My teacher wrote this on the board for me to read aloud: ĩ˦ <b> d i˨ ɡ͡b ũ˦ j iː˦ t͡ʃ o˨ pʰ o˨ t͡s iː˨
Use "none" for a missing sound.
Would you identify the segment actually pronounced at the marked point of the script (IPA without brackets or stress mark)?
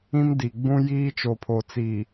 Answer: m